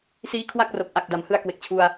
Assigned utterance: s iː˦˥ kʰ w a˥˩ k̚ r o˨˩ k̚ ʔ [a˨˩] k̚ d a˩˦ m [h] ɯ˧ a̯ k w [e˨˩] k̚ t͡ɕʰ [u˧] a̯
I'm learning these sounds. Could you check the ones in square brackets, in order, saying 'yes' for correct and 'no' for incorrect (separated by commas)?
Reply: yes, yes, yes, yes